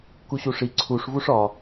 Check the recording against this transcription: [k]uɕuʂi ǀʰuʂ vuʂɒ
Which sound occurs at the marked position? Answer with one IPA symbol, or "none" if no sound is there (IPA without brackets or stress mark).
k